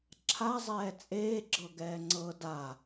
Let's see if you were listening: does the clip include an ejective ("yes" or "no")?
yes